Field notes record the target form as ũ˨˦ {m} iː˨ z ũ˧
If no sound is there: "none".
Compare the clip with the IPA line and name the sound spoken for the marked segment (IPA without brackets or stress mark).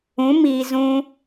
m